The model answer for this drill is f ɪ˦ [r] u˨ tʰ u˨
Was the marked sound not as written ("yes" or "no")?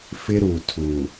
yes